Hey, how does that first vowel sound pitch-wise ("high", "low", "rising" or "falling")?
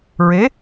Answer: rising